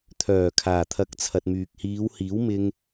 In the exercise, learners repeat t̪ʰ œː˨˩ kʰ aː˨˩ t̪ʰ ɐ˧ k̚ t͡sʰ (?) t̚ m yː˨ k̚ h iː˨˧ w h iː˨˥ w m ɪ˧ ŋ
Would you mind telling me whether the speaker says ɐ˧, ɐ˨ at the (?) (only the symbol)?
ɐ˨